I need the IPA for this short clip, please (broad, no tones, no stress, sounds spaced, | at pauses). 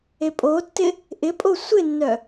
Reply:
e pʼ o tː ɪ | ʔ ɪ pʼ o sʷ ɪ nː œ